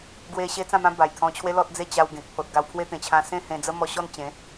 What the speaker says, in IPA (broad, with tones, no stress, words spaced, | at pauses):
ɡwe˧ ɕe˦t͡sã˥˧mã˦ ba˨˩jt̪ʰɔ̃˧t͡ɕʰwe˦ lɔ˦t̚d͡ze˥˧ t͡ɕa˧wɡẽ˨k̚pʰo˨t̚ ɡa˧wpʰwe˦t̪ẽ˨˩t͡ɕʰã˧ sẽ˥˧hẽ˧d͡zə˦ mɔ˧ɕɔ˥˧nt͡ɕẽ˨˦